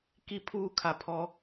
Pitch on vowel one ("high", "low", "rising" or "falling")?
high